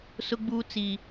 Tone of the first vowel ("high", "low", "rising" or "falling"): high